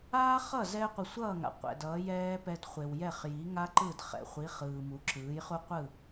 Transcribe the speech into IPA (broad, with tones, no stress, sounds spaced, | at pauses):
aː˥ χ ʌ˥˩ z ɛ˥ qʷ ɯ˩ sʷ ʌː˥˩ ŋ a̰˩ qʷ ɛ̰˩ d ʌː˩˥ j ɛː˥ p ɛ˧ d χʷ e˩ w j ɛ˥˩ χ j i˩˥ ŋ a˥ ǃ ɯ˥˩ d χ ɛ̰˩ χʷ i˩˥ χ ɯː˩ m u˩˥ ǁ ɯː˩˥ j χ u˥ qʷ ɯ˥˩